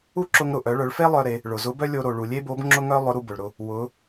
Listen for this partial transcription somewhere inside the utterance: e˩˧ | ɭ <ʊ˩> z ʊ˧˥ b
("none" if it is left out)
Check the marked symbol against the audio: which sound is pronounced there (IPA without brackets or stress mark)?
ʊ˩